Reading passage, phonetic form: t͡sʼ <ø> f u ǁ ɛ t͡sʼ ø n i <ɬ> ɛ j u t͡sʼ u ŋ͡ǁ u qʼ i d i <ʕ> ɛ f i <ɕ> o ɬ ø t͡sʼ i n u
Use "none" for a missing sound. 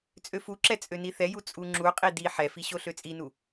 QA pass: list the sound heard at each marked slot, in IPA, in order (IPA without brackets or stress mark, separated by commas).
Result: ø, θ, ħ, ɕ